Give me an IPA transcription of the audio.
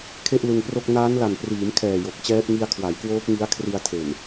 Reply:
kʰ e˥˩ ʔ l ɯ˧ ŋ p r o˥˩ k̚ n aː˦˥ n l a˨˩ n p r iː˩˦ m kʰ ɛː˨˩ j o˨˩ k̚ t͡ɕ ɛː˦˥ p̚ ŋ i˧ a̯ kʰ w a˩˦ j k w oː˦˥ k̚ ŋ i˦˥ a̯ kʰ r i˧ a̯ tʰ e˨˩ n

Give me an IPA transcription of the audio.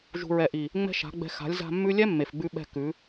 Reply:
ʒ ṳ˧ ɹ ɛ˨ ʔ i˨ | ŋ͡m ɛ̤˦ ʃ a̤˨˦ ɡ͡b ɛ̤˧ x a̤˨˦ lʲ z a̤˧ mː ʉ˦ lʲ ɛ˦ mː e˨ f ɡ͡b ʉ˧ ɓ ɛ̤˧ k ʉ˨˦

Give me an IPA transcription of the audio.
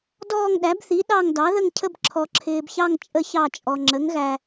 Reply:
d ɔː˦˨ ŋ ɗ æ˩˥ b θ i˩˥ ɗ ɑ˦˨ ŋ d ɑ˩˥ ð ə˦˨ ŋ cʰ ə˦˨ b ǁʰ ɔ˨ ǁʰ ɪː˨ b ç ɑ˦˨ ŋ t͡ʃʼ ə˦ ç ɑ˦˨ t͡ʃʼ ɔ˨ ŋ͡ǁ ə˩˥ ŋ ɣ æ˨

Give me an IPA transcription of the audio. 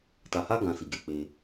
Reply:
t a˧ h a˦ ɡ ã˧ s i˨ ɡ e˨ k͡p e˧

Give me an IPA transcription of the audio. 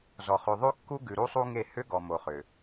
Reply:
z ɔ˨ χ ʉ˨ ðˤ ʉ˦ kː u˦ ɡ ʉ˨ ɾ u˦ sˤ u˦ ŋ e˦˨ h ʏ˦ ɡ ɔ˨ m o˨ χ ʏ˨

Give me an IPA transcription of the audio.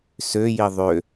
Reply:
s ø j i ðˤ ø

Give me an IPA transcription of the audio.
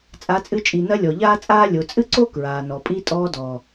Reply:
t͡sʼ a˨˦ t͡sʼ ɨ˧ t͡ʃʼ i˨ n ɐ˧ lʲ ɔ˨ ʎ aː˦ t͡sʼ aː˦ lʲ o˨ t͡sʼ ɨ˦ ǀ o˦ k ɹ aː˨ n ɔ˨ pʼ i˦ tʼ ɔː˧ d ɔ˨

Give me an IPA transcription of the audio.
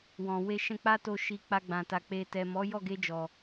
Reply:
w ɔ̃˨ w e˧ ʃ ɛ̃˧ k͡p a˦ t o˧ ʃ i˨ k͡p a˧ ɡ͡b ã˨ t a˨ k͡p e˨ t ɛ˨ m ɔ˨˦ j ɔ˦˨ ɡ e˧ d͡ʒ ɔ˨

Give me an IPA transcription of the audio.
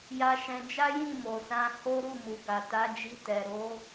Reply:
j a˧ ʃ ɛ̃˧ d͡ʒ a˦ j ĩ˦˨ m o˨ s ã˧ h o˦ ɾ u˦˨ m u˨ ɡ a˨ t a˨˦ d͡ʒ i˧ t ɛ˨ ɾ o˨˦

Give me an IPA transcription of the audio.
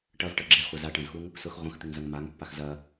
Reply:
ʈ ɐ v ʈ ɐ ɡ͡ǁ ɪ z χʷ ɐ z a ʈ ɐ̃ z x u ŋ | s ʊ x ʁʷ ɐ̃ x t̪ ɪ ŋ z ɐ ŋ m a ŋ pː a x z ɐ

